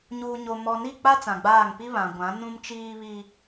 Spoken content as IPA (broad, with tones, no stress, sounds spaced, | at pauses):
ɲ uː˨ ɲ o˨ m ɔ˨ n i˦˨ k͡p a˦ t͡s ã˨ ɡ͡b aː˦˨ ŋ p i˦ β ã˨ ɡʷ ã˨˦ n ũ˦ m t͡ʃ iː˦ β i˦